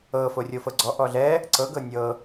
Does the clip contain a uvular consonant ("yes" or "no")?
no